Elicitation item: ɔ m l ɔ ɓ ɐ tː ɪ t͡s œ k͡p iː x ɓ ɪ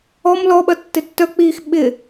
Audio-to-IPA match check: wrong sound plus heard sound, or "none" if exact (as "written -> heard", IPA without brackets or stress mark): t͡s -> tː